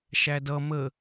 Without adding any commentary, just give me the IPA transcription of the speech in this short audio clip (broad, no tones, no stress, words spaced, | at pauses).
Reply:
ʃædʌ mə